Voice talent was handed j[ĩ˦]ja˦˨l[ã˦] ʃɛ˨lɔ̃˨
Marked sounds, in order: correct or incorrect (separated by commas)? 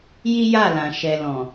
incorrect, incorrect